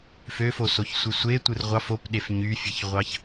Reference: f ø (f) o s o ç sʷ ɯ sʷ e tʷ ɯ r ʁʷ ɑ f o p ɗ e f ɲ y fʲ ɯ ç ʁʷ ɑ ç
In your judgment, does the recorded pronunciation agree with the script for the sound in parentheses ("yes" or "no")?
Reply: yes